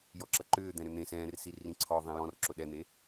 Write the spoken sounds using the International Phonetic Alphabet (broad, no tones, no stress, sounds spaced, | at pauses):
j ɔ ǁ ɐ ǃ ʏː d̪ ɛ̃ ɾ ʏ n̪ ẽ s ɛ̃ː r s i r ĩ ǀʰ ɔ ðˤ ĩ j ɔ̃ r ǁ ʊ ɗ ɛ n̪ e